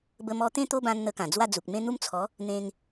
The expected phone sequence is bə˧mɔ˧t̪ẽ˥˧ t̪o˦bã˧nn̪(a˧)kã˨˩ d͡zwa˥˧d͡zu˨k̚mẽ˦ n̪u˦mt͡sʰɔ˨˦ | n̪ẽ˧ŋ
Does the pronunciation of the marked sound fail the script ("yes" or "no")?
yes